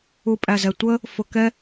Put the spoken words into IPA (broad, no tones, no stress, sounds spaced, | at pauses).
u pʼ æ z ɛ tʷ ə | f ʊ k ɛ